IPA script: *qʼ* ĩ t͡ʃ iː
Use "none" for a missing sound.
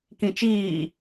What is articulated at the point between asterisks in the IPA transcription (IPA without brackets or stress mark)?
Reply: k